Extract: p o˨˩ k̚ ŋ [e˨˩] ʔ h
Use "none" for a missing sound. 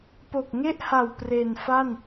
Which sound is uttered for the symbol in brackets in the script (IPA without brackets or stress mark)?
e˥˩